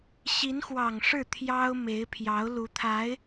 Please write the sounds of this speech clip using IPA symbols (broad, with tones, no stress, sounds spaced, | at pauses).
ɕ i˧˥ n x w ɑ˨˩ ŋ ʂ ɻ̩˥˩ t̪ʰ j ɑ˥ ʊ̯ m e˧˥ ɪ̯ pʰ j ɑ˧˥ ʊ̯ l u˧˥ t̪ʰ a˧˥ ɪ̯